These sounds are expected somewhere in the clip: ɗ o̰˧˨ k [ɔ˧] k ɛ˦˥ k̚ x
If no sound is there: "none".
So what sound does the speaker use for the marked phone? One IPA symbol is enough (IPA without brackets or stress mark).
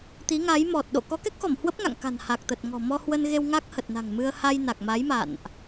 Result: ɔ˨˦